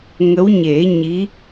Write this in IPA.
ŋ ə˧˥ w ɲ e˨˩˦ ɲ i˧˥

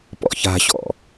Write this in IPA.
p ɔ̰ ç a̤ ɕ ɔ̰

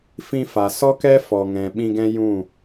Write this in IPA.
f ĩ˧ f a˨ s ɔ˦ k ɛ˦ f ɔ˨ ŋ ɛ̃˨ ɓ ĩ˧ ɡ ɛ̃˦ j ũ˦˨

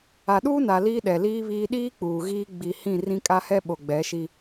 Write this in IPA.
a˨ ɗ uː˦ n a˨ l iː˦ ɗ ɛ˨ l iː˦ β iː˦ ɗ iː˦ k͡p uː˨ ɣ iː˦ ɡ͡b i˨ h ĩ˦˨ r ĩ˦ kʼ a˦ h ɛ˦ ɓ o˨ ɡ͡b ɛ˨˦ ʃ i˦

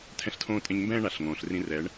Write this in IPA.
tʰ ɛ̃˦ ɬ tʰ õː˦ tʼ ẽ˧ ɲ m b ɛ̃ː˦ ɳ a˨ ɬ ŋ õː˨ ɬ r ĩ˧ r ɛː˨˦ ɳ

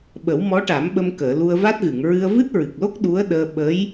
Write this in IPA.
ɓ ə˨˩˦ w m ɔ˧˥ ʈ a˨˩˦ m ɓ ə˧ m k əː˨˩˨ l u˧ ə̯ v a˦˥ t̚ ɣ ɨ˨˩˨ ŋ ɹ ɨ˧ ə̯ v ɨ˦˥ t̚ ɹ ɨ˨˩ k̚ l o˦˥ k̚ ɗ u˧˥ ə̯ ɗ əː˧ ɓ ə˧˥ j

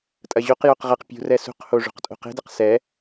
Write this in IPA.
tʼ ɐ ʑ o q j o q ʁ ɐ q pʲ ṳ r ɛ s ṳ q h o ʐ ṳ q tʼ o̤ q e̤ d ɐ q s ɛ

